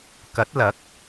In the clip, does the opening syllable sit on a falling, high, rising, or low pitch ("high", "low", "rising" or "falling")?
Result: rising